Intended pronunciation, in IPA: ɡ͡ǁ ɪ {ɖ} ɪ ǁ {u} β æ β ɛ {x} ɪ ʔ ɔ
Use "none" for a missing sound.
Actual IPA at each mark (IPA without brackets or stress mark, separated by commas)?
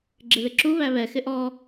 ð, u, x